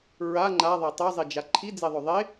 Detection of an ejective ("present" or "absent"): absent